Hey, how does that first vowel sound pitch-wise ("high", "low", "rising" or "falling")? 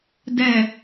low